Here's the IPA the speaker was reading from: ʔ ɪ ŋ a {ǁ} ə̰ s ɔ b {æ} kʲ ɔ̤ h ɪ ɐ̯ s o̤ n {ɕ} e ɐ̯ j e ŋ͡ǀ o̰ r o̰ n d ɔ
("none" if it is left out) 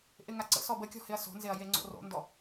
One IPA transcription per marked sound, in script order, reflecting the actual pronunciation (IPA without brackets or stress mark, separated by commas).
ǀ, ə, z